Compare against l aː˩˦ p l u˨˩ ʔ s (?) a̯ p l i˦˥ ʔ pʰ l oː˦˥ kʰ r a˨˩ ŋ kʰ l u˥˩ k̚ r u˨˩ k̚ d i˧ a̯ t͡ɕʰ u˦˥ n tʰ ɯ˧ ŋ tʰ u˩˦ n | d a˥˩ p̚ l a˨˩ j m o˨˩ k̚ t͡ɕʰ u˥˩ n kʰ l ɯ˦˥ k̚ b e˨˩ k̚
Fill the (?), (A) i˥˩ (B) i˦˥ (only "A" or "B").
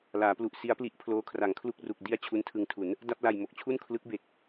B